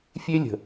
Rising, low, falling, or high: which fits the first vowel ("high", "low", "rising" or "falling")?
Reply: high